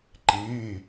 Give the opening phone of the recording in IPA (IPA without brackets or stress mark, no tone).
ǃ